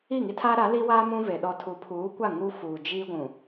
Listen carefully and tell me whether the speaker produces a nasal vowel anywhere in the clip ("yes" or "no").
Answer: yes